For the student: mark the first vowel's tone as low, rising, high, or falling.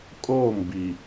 falling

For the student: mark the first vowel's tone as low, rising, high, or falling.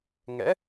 rising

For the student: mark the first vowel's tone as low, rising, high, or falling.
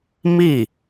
falling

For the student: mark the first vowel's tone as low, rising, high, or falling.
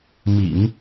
low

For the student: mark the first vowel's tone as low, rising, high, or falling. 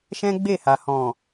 high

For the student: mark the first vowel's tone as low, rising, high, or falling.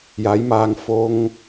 rising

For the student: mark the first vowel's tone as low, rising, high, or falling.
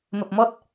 low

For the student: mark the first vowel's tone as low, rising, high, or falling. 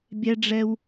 high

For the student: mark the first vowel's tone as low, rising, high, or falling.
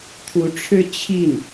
rising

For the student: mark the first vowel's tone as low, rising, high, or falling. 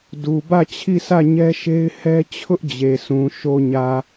low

